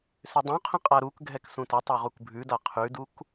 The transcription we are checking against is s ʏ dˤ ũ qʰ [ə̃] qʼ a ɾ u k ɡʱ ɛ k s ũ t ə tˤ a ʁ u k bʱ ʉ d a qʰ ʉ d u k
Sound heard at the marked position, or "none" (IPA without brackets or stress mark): ə̃